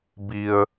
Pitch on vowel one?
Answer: low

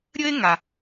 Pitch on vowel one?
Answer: high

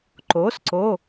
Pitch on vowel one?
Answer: rising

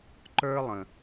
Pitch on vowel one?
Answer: high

